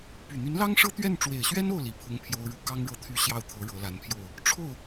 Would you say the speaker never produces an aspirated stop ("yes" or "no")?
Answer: no